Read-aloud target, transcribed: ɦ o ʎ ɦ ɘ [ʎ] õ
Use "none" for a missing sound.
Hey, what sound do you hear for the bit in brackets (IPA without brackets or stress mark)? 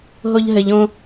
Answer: ʎ